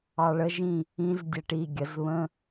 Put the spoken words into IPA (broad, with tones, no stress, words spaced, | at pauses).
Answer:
ɑ˧ɭə˦˥ʒĩ˥˧ | ĩ˦˥zdʲɛ˧ʈi˩˧˩ ɡʲə˩˧zβə̃˧˥˧